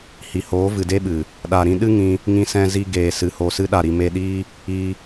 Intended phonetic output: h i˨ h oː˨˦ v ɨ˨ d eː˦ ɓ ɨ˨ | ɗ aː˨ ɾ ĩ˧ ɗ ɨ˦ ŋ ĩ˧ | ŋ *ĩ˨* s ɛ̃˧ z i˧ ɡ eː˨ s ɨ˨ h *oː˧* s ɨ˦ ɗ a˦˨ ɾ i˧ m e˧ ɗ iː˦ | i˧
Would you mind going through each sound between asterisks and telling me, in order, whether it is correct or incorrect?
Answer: incorrect: ĩ˧, correct

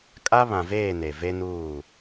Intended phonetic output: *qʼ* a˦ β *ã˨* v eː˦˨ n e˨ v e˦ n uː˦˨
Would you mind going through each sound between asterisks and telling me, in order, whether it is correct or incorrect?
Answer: incorrect: kʼ, correct

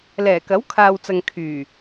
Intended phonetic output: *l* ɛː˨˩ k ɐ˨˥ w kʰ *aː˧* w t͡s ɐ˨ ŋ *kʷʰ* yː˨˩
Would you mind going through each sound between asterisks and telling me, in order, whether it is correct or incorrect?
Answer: correct, incorrect: aː˨, incorrect: kʰ

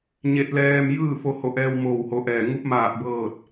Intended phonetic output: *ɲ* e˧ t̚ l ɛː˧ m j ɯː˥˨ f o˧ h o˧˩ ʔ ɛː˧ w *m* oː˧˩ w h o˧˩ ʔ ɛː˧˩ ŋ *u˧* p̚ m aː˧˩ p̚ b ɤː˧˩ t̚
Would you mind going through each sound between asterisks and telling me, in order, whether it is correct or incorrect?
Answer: correct, correct, correct

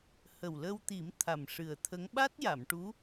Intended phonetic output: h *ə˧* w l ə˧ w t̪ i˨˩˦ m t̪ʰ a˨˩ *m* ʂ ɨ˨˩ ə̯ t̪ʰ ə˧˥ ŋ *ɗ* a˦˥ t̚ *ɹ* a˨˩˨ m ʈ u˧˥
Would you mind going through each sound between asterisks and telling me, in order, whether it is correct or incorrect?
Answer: incorrect: ə˨˩, correct, incorrect: ɓ, incorrect: j

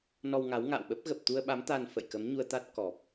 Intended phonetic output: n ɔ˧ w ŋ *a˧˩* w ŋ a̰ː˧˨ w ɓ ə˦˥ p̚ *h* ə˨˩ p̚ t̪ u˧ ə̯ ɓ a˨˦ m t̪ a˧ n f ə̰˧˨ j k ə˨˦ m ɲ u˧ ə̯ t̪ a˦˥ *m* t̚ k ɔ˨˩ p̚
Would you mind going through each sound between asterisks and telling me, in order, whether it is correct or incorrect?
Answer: incorrect: a˨˦, incorrect: ɣ, incorrect: none

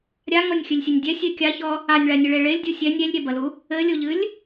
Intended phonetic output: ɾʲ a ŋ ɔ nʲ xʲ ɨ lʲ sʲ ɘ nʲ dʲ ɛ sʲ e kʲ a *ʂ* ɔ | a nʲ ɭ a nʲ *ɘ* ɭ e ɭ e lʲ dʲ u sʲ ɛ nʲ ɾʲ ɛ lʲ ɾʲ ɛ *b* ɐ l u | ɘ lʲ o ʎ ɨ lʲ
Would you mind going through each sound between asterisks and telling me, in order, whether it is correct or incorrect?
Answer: incorrect: ç, correct, correct

